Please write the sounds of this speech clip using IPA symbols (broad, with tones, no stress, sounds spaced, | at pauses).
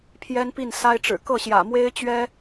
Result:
pʰ j ɛ˥ n p i˥˩ n s a˥ ɪ̯ ʈ͡ʂ ɻ̩˨˩ k ɤ˥˩ ɕ j ä̰˨˩ m w e˥ ɪ̯ t͡ɕ ɥ ɛ˥